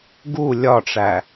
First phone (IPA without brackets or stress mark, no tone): ɡ